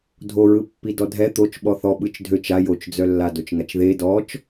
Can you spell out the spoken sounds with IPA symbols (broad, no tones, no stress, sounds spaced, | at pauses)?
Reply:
dʱ o ɹ ɯ pː i d ɔ dʱ ɛ t̪ o t͡ʃ ɓ ɔ θ ɔ ɓ ɯ t͡ʃ dʱ ø t͡ʃ a j o t͡ʃ d͡z œ lː a d o t͡ʃ ŋ a t͡ʃ ð e d ɔ t͡ʃ